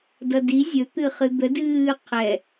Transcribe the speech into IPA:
d ʌ d i zʲ ɵ t̪ ɨ χ ɨ d̪ ə d ɨː qʰ ɛ

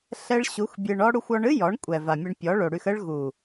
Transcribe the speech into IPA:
ɬ ɛ˦ ɭ ɕ u˨˦ x bʲ ɨ˧ ɳ ɔ˦ ɽ u˧ xʷ ɔ˧ ɳ ɨ˦ j ɔ˨˦ ɳ kʷʼ ɛ˨ v a˨ mʲ ɛ˧ ɳ pʲ ɔ˨˦ ɭ o˨ ɽ y˧ x ə˦ ɭ ɣ u˨

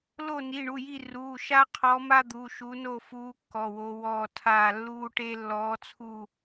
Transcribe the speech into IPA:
l o˦˨ n i˩˧˩ ɳ u˩˧˩ j i˦˨ r uː˩˧˩ ʃ a˦ qʰ ɔ˨˦ m a˦ d̪ u˩˧˩ ʃ u˨˦ n o˦˨ f uː˨˦ kː ɔ˩˧˩ w o˨˦ w ɔː˦˨ tʰ aː˦˨ lː uː˦ ʈ e˦ lː ɔː˨˦ t͡sʰ u˦˨

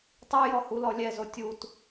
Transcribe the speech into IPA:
tˤ u j ɔ h u l ɔ lʲ ɛ z o tʲ u t

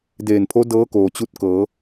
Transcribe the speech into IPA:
d eː˧˩ n pʰ o˧˥ d ɤː˧˥ k oː˩ t͡ɕ u˧˥ t̚ k ɤː˩˧

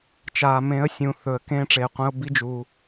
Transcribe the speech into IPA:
t͡ʃ aː˨ m ẽ˨˦ ə̯ sʲ ũ˨ θ ɵ˨ ə̯ k ẽː˧ ʈ͡ʂ eː˨ qʷ ẽ˧ ʊ̯ b i˦ d͡ʒ u˧

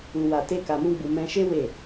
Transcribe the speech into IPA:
u˧ w a˧ t e˦ k a˧ m ũ˦ ɡ͡b u˧ m ɛ̃˧ ʃ e˦ w e˦˨

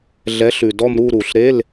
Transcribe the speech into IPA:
ɮ ɛ˨˥ ɬ ʉ˩ d ɔ˥˧ m ɾ u˥˧ ɾ u˩ ɬ ɾ e˧˥˧ l

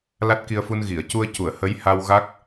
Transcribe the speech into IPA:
l a˦˥ t̚ k i˧ ə̯ f u˧ n ɣ i˨˩˨ ə̯ c u˧ ə̯ c u˨˩˨ ə̯ h ə˧˥ j h a˧ w ɣ a˦˥ k̚

